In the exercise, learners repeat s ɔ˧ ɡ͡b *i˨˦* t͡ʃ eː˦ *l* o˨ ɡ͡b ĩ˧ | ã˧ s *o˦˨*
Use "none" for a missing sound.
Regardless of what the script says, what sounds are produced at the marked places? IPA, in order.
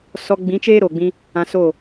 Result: ĩ˨˦, ɾ, o˦˨

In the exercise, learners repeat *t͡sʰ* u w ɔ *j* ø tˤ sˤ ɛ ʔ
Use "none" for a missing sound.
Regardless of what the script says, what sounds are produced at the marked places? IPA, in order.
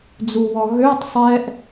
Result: d͡z, ɣ

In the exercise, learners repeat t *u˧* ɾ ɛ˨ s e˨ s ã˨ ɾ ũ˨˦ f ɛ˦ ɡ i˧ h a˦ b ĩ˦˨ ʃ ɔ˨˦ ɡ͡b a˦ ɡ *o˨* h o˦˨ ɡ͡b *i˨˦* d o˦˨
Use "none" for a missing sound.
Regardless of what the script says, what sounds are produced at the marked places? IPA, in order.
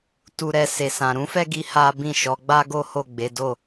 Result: u˨, o˦, e˨˦

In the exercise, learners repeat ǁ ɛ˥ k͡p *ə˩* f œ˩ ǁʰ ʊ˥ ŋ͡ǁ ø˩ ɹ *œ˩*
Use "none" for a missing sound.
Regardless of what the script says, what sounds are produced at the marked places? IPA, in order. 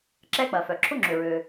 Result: ɐ˩, ø˩

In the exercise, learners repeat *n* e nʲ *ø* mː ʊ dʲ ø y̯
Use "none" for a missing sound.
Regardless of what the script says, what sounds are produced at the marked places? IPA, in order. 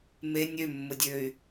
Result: m, ø

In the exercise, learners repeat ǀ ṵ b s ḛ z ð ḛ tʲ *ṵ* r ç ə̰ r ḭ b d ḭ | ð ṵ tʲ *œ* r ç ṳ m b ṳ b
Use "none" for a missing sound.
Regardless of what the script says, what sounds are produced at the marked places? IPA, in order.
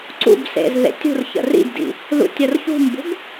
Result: ṳ, œ

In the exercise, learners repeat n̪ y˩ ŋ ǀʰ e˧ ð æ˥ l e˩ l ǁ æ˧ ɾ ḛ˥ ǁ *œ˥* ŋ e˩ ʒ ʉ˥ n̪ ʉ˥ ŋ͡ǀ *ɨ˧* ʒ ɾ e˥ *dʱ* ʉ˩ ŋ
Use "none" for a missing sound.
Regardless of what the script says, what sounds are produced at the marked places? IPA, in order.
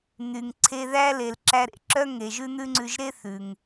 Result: œ˥, ʉ˧, θ

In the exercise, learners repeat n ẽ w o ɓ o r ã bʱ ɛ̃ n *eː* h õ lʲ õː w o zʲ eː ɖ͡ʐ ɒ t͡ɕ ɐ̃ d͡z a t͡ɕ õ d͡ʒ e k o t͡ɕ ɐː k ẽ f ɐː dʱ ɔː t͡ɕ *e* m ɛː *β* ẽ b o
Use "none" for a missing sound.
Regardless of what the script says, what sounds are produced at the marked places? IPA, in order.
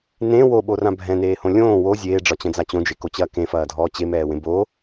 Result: eː, e, w

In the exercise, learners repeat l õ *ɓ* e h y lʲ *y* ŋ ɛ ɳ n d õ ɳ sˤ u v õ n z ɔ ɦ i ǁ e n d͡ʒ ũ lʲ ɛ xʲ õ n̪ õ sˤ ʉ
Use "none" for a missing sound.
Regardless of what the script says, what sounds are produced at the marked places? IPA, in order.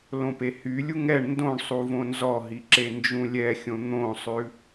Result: p, u

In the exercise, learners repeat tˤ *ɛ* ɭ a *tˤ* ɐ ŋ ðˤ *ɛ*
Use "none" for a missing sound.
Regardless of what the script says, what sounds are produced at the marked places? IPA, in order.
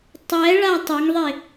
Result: ɛ, tˤ, e

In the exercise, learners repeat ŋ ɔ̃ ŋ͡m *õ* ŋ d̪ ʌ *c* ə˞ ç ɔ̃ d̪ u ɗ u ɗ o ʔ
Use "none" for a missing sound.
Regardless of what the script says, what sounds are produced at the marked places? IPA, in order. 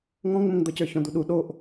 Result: õ, c

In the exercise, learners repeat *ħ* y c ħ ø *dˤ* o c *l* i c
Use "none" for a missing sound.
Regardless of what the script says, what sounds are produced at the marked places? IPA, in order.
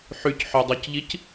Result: ħ, dˤ, ʎ

